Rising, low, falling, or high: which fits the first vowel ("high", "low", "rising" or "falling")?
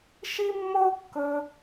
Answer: high